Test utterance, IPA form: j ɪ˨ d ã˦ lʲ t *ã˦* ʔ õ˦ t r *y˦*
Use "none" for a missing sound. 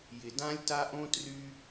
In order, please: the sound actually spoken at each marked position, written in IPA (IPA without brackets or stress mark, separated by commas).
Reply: a˦, y˦